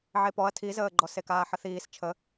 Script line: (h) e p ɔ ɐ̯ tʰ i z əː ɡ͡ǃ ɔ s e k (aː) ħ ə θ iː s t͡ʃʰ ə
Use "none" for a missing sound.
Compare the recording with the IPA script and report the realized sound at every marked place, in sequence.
ʕ, aː

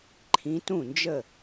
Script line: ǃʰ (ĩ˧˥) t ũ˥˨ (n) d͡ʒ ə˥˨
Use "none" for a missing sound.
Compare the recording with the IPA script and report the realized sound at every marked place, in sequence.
ĩ˧˥, n

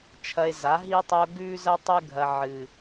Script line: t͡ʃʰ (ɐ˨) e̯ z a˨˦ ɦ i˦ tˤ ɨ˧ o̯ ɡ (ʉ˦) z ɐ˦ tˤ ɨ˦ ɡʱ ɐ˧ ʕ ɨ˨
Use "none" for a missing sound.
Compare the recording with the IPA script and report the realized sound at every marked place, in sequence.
ɐ˧, ʉ˦

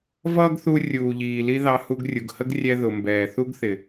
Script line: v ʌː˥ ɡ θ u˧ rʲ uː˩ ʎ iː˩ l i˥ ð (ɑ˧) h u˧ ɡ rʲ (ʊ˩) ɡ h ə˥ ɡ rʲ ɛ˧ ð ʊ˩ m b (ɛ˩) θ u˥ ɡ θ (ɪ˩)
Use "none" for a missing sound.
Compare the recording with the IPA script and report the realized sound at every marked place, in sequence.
ɑ˧, u˩, ɛː˩, ɪ˩

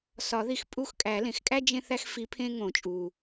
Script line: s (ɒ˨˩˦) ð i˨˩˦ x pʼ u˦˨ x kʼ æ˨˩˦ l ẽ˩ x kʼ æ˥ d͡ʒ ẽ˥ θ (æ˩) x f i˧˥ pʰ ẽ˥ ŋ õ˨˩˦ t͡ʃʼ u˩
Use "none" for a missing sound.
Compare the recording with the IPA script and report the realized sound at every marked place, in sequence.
ɒ˨˩˦, æ˥

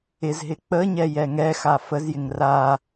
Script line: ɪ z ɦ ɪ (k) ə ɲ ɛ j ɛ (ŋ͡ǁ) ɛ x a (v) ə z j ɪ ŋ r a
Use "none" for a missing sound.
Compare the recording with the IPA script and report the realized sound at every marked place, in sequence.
k͡p, ŋ, f

